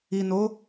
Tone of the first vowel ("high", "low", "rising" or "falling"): low